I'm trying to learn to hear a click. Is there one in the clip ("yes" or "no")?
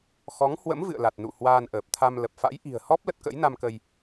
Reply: no